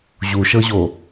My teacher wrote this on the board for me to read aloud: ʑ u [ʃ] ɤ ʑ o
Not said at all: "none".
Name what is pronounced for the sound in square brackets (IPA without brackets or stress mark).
ʃ